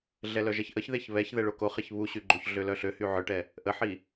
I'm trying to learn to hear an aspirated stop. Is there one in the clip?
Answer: no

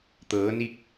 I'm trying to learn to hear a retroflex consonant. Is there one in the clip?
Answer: no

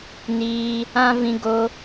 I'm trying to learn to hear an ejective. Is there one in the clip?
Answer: no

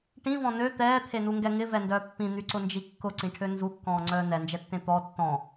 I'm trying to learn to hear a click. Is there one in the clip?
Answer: yes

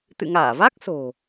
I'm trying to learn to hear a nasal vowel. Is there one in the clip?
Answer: no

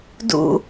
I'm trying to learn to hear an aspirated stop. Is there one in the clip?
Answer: no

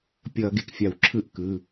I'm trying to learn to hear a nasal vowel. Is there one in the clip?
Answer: no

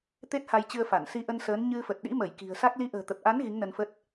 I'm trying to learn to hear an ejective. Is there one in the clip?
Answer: no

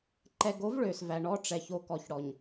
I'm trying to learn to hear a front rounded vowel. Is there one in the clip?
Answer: yes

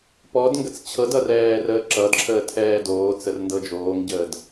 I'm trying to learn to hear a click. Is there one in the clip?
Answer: yes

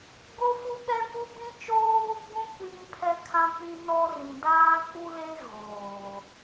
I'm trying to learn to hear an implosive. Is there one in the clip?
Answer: yes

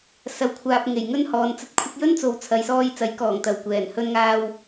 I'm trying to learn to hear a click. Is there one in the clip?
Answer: no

